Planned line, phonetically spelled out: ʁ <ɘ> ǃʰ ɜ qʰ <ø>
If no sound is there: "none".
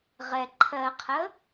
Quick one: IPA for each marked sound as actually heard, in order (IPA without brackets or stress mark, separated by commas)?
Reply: ɛ, ə